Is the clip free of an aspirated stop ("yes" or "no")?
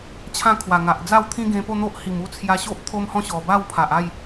no